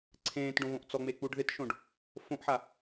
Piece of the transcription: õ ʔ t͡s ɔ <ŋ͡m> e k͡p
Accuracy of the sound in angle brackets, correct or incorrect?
correct